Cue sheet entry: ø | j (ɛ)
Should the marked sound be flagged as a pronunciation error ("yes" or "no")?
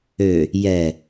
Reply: no